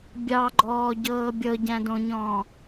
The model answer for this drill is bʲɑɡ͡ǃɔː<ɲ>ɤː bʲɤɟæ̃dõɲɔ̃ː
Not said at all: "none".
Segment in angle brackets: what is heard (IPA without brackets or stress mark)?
ɟ